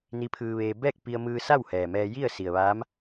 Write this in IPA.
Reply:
n i˧˥ pʰ ɯː˧ ʋ eː˧ b ɛː˥˨ k̚ p i˧ ə̯ m ɯː˧ s a˥˨ w h ɛː˩ m ɛː˧ j i˥˨ ə̯ s i˩ ə̯ ʋ aː˧˥ m

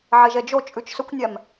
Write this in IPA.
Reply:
ʕ e ʒ ɛ d͡ʒ o t͡ʃʼ ʉ t͡ʃ s ɵ kʷ nʲ æ m

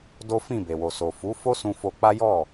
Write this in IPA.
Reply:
d o˦ f ĩ˦˨ b e˨ w o˨ s o˨ f u˨˦ f o˦ s ũ˧ f o˧ k͡p a˦ j ɔ˦˨

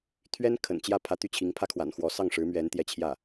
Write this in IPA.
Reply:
t̪ʰ ɥ ɛ˥ n kʰ ə̰˨˩ n t͡ɕ j ä˥˩ pʰ ä˧˥ t̪ y˥˩ t͡ɕʰ i˧˥ ŋ pʰ ä˥ kʰ w a̰˨˩ n x w ɔ˧˥ s ɑ˥˩ ŋ ʂ ɻ̩˧˥ m ɥ ɛ˧˥ n t̪ j ɛ˥˧ t͡ɕʰ j ä˥˩

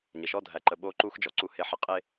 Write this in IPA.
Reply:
ɲ ə˨ ʃ ɔ˦ dʱ æ˨ ǃ ə˨ ɓ o˦ ǃ u˦ x d͡ʒ ɔ˨ ǀ u˦ h e˦ ħ ə˦ qʼ e˦

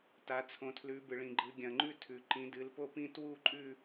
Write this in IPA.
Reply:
t a˩˧ t͡sʰ õ˩˧ tʰ l ʉ˩˧ b ɨ˩ ɭ ĩ˩ ɡ͡ǃ ɨ˩˧ ɡʲ ɐ̃˩ ŋ͡ǃ ʉ˦˨ tʰ ʉ˩ ǃ ĩ˩˧ d ɨ˩˧ l p o˦˨ p ĩ˦˨ t w u˦˨ ǃʼ ʉ˦˨

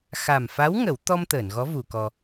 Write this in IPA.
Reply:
x a˨˩ m f a˧˥ w ŋ ə˨˩˦ w t̪ ɔ˧ m t̪ əː˨˩˨ n ɣ ɔ˧˥ v u˨˩˨ k ɔ˧

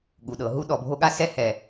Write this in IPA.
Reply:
ɠ u˩ ɗ ɤ˩ ɦ u˧ ɗ ɔ˩ bʱ o˧ ɠ a˧ s ɛ˧ h ɛ˩

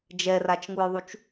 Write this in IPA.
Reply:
d͡ʒ ɛ r a t͡ʃ ŋ u j ðˤ u t͡ʃ

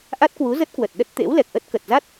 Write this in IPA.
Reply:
ʔ a˦˥ t̚ k w u˨˦ z ə˦˥ t̚ k w ə˨˩ t̚ ɗ ə˦˥ t̚ t̪ ḛ˧˥ w l ɛ˨˩ k̚ ʔ ə˦˥ t̚ k ə˨˩ t̚ z a˦˥ t̚

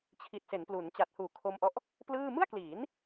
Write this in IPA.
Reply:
t͡ɕʰ i˨˩ t̚ s e˩˦ n p l u˩˦ n t͡ɕ a˨˩ t̚ h uː˨˩ kʰ o˧ m ʔ ɔ˦˥ ʔ | p l ɯː˥˩ m ɯ˥˩ a̯ k l iː˩˦ n

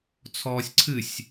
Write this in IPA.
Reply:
t͡sʰ ɔː sʲ ǀʰ ɨ sʲ

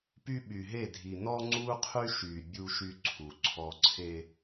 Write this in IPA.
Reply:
p y˦ ɓ y˨ ɦ e˦˨ dʱ i˨ n ɔ˦ ŋ͡ǀ u˦ qʰ y˦ ʃ y˨ bʲ u˦ ʃ y˦ ǀʰ u˨ ǀʰ ɔ˦ ǀʰ e˦

